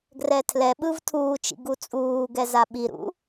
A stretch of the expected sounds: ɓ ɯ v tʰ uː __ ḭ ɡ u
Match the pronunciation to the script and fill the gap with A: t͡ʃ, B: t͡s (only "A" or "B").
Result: A